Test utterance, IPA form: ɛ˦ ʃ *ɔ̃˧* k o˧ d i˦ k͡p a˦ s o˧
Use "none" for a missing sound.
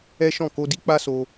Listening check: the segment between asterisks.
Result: ɔ̃˦˨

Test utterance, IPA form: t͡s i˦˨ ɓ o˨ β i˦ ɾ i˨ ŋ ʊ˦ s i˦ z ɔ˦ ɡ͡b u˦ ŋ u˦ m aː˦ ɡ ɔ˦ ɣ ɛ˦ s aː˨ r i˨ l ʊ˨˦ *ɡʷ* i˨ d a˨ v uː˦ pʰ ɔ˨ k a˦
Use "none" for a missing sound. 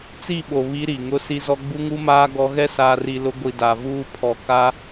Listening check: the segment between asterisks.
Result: ɡʷ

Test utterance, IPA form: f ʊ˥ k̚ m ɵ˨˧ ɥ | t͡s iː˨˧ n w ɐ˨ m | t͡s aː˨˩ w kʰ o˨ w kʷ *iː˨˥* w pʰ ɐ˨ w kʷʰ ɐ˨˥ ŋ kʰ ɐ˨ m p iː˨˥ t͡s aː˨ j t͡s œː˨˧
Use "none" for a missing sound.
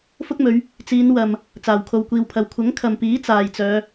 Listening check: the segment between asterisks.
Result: iː˨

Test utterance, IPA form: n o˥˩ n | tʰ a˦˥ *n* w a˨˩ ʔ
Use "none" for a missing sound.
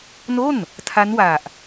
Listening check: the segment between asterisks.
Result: n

